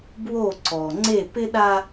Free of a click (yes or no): no